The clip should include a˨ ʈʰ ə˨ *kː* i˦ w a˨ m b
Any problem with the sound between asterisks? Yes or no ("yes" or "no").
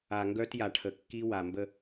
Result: no